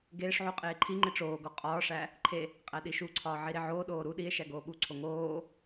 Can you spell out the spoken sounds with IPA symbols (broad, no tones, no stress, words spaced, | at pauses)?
ɡeːʂʕu qʼeːǃʰiŋ͡ǃe ʈ͡ʂoːɡo qʼɒːʂæ | ǃʰe | qʼæɗiʃuǀʰɒː ʕiɾeʕoːɗoː ɾu ɗie̯ ʃæɡoːɓuǀʰo ŋoː